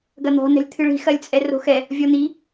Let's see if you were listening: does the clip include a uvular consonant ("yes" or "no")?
no